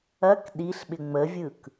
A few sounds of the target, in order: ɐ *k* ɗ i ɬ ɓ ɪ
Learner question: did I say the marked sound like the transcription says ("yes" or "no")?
yes